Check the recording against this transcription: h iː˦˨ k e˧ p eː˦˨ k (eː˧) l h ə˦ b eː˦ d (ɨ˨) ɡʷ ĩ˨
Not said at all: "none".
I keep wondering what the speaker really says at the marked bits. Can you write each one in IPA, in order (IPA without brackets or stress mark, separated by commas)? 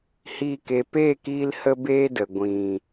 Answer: iː˧, ə˨